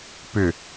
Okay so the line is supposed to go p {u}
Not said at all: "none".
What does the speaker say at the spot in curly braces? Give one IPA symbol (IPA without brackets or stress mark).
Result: ʏ